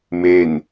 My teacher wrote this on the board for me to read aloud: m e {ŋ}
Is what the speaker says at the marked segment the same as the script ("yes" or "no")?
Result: no